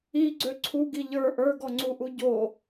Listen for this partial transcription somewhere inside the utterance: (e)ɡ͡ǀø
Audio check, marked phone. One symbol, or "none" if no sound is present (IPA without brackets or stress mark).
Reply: i